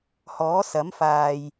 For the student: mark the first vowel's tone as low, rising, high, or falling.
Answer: rising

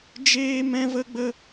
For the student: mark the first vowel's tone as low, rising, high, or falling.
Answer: high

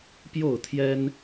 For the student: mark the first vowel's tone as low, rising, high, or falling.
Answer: falling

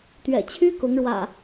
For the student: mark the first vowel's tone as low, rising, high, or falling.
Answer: low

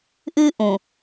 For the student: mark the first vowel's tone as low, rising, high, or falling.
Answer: high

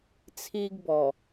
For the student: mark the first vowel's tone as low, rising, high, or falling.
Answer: high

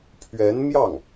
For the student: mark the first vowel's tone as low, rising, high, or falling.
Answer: rising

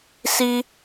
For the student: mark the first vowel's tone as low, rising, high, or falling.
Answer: high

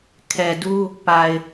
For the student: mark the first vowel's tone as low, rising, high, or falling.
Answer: low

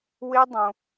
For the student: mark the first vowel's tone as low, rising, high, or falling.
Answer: high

